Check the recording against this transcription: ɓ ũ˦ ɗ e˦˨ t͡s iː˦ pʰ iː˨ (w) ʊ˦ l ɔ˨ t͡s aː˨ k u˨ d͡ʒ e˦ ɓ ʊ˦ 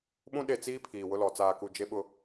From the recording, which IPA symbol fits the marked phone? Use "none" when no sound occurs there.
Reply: w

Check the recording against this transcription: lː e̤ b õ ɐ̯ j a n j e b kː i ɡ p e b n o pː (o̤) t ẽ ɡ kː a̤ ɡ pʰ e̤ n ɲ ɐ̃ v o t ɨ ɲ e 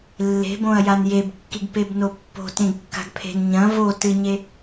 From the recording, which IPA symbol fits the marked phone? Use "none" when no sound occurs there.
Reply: o̤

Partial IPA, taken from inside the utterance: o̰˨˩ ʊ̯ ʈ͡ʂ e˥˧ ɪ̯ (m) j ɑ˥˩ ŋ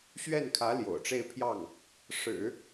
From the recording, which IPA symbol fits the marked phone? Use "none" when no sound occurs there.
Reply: pʰ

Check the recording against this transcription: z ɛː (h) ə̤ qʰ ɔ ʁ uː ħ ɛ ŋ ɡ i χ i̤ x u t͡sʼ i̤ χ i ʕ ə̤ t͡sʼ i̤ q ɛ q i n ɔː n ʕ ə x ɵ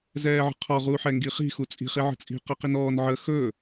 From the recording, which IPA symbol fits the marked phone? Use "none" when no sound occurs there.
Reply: ʕ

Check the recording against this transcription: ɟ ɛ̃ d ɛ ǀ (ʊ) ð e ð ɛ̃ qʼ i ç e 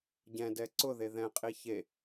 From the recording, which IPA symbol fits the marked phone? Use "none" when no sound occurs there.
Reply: ʊ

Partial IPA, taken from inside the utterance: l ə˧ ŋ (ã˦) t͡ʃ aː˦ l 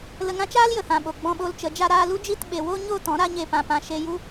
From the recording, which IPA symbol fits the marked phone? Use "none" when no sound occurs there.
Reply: ã˦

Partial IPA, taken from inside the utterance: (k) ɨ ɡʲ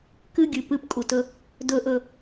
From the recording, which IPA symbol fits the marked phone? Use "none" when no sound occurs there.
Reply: k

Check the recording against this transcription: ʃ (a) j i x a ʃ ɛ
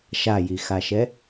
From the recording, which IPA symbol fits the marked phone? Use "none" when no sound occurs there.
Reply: a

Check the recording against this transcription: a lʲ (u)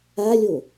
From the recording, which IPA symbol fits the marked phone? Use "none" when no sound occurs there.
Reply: o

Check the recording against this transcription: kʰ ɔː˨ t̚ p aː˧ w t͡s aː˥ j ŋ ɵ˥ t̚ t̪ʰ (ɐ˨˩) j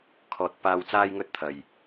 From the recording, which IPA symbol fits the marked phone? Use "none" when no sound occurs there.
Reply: ɐ˨˩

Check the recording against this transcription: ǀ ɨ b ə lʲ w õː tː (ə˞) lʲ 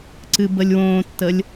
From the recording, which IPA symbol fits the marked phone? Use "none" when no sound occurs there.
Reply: ə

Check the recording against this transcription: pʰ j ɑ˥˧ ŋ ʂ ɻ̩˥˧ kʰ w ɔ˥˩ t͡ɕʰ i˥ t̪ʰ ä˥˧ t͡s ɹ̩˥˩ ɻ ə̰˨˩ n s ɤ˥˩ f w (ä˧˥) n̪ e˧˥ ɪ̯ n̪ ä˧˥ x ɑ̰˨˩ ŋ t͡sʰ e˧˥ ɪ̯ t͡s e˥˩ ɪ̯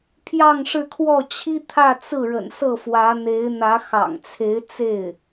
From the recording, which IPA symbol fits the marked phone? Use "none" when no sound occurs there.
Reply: ä˧˥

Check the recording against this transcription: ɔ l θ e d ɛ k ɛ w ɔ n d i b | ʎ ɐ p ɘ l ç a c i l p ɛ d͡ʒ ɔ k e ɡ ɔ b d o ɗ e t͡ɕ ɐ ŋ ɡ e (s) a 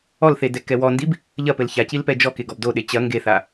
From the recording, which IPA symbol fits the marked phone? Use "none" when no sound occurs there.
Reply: θ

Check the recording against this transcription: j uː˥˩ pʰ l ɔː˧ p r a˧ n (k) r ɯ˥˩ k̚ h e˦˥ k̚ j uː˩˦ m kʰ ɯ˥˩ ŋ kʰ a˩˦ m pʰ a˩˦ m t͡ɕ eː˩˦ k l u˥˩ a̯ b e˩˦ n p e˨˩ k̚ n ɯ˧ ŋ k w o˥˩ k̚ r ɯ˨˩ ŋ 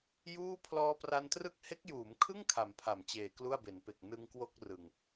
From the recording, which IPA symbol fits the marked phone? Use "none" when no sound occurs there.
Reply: t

